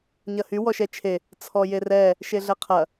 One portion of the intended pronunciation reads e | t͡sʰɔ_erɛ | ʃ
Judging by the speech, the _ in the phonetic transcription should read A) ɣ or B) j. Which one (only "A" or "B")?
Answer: B